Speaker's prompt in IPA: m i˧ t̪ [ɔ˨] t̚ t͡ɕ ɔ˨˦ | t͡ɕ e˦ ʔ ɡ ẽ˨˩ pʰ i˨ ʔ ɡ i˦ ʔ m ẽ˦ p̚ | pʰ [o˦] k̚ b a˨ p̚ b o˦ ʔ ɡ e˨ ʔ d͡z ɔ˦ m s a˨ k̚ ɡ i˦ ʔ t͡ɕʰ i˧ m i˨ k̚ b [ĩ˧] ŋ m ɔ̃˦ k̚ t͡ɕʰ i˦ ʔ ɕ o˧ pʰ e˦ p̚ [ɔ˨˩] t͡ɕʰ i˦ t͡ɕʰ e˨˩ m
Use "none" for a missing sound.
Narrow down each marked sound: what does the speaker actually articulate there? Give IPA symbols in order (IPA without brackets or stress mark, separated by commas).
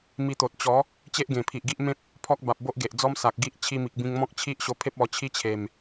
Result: o˨, ɔ˦, ĩ˧, ɔ˧